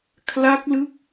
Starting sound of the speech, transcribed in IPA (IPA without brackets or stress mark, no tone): kʰ